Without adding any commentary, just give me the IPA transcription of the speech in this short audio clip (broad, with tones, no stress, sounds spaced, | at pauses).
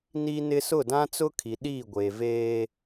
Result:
n iː˦ n ɪ˦ s ʊ˦˨ d ã˦ t͡s ʊ˦ kʰ i˨ ɗ iː˦˨ ɡʷ eː˨ v eː˦